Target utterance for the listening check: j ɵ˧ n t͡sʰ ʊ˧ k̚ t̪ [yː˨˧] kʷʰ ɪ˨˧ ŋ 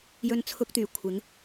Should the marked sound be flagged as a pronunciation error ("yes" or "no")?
yes